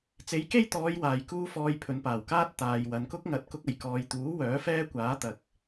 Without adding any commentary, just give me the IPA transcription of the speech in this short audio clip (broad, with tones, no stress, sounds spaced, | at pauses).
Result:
t͡s e˨˥ j k e˥ j t̪ ɔː˨˧ j w aː˨ j k uː˥ f ɔː˧ j pʰ ɵ˨ n p aː˨˩ w k aː˥ t̚ t̪ aː˨ j w ɐ˨ n k ʊ˥ k̚ ŋ ɐ˨˥ t̚ k ʊ˧ k̚ ɐ˨˩ j k ɔː˨ j t̪ uː˨˥ w œː˨˥ f ɛː˥ kʷ aː˨˥ t̪ ɐ˨ k̚